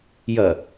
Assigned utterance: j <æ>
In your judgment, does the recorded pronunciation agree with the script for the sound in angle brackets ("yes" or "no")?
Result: no